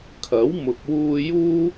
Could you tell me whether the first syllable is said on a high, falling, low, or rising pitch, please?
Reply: rising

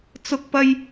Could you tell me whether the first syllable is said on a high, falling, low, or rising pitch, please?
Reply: high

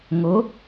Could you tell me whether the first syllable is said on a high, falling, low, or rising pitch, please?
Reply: rising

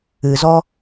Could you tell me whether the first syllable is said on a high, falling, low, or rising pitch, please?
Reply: low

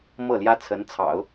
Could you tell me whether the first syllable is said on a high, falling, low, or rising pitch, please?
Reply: falling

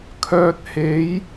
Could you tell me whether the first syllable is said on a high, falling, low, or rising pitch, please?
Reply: low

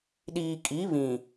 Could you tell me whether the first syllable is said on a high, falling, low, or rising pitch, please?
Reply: low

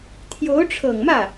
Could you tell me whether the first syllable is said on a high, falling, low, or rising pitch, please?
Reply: rising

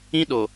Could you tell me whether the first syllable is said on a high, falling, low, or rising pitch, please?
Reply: high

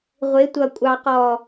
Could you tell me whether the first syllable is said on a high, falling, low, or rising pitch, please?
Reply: rising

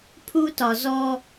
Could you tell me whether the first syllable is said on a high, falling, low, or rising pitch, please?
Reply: high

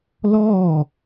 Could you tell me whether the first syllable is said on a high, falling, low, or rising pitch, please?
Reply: falling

